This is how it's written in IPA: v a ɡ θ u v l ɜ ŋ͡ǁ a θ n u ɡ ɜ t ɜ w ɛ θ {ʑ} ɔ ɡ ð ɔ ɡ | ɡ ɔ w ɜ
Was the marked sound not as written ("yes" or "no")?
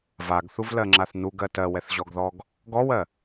no